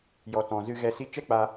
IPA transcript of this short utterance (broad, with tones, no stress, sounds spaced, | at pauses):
j ɔ˨ t ɔ̃˨ z ɨ˧ ɣ ɛ˧ s i˧ t͡ʃ ɛ˦ k͡p a˧